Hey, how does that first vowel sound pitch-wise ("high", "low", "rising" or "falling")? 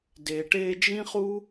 low